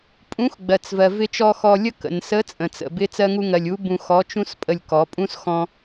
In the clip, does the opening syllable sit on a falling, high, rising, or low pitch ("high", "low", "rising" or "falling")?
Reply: rising